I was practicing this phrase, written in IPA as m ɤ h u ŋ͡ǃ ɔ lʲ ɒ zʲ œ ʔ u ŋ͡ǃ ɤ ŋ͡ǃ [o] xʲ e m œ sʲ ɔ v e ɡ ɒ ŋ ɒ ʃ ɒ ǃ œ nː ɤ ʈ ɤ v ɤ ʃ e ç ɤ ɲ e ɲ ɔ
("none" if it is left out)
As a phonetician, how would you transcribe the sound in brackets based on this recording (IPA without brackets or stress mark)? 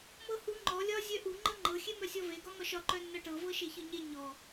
ɤ